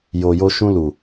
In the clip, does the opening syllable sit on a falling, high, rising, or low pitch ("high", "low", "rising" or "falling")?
low